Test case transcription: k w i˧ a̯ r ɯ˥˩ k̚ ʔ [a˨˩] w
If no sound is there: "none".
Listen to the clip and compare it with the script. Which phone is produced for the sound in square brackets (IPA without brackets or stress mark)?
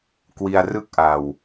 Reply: a˨˩